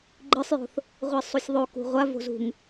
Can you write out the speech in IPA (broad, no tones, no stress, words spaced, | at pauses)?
ɡ͡ǃɨsˤjo̤θ | ʁʷisˤusʲðˤo kṳʁʷa vo̤zṳŋ